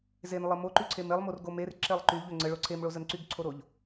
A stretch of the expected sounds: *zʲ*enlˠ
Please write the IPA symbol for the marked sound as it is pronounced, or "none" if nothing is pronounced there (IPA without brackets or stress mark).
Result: z